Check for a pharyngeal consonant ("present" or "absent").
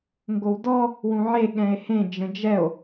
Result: present